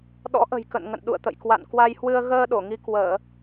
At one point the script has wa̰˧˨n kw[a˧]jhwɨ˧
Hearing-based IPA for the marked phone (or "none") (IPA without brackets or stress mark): a˧